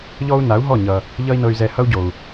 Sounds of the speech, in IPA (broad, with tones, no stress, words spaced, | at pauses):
ʎɔ˥u̯na˩˥u̯ɦɔ˥˩ ɲʌ˩ | ʎʌ˥i̯nɤ˧y̯zɛ˧ hʌ˥u̯ɟo˩u̯